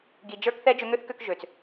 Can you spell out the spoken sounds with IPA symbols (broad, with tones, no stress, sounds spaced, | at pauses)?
ɡ i˨ d͡ʒ ə˞˧ k θ ɛ˧ d͡ʒ ø˧ ŋ ø˦ θ k ø˧ k ʒ ø˨ t͡s